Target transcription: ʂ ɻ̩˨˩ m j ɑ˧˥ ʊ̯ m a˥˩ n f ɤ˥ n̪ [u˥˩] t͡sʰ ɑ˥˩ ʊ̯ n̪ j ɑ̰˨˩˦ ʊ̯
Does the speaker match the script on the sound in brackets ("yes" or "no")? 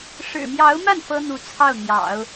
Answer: no